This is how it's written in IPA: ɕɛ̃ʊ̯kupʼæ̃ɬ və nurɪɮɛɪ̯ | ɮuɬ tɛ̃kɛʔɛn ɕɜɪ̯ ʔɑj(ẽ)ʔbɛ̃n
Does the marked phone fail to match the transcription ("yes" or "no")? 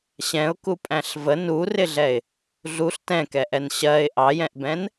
yes